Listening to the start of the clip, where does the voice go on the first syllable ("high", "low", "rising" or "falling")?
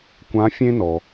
rising